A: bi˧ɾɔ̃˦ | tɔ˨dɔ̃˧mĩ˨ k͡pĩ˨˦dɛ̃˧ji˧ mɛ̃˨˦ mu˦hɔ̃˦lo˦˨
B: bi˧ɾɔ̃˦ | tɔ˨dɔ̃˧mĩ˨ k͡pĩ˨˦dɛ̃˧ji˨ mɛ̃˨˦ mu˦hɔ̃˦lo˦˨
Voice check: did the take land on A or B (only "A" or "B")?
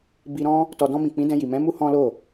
B